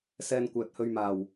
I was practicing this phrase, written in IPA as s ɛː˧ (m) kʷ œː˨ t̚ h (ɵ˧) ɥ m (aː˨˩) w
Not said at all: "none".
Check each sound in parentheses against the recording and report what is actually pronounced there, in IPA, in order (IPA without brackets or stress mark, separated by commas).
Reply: n, ɵ˧, aː˨˩